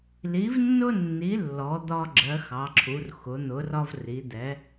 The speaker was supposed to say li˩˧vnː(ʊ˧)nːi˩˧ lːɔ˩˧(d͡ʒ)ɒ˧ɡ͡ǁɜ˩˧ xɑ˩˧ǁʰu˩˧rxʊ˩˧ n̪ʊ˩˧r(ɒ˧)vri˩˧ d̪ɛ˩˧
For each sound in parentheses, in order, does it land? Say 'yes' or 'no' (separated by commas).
yes, no, yes